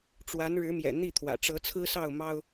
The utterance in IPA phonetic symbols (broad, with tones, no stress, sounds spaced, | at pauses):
ʈ͡ʂ w a˨˦ n ɻ ɻ̩˨˦ m j ɛ̰˨˩ n̪ i˥˨ t̪ʰ w ä̰˨˩ ʈ͡ʂ ɤ˨˦ t͡sʰ ɹ̩˦ s ɑ˥˨ ʊ̯ m ɑ˦ ʊ̯